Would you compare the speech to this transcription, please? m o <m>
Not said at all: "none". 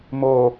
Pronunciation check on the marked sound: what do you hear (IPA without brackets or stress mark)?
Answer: none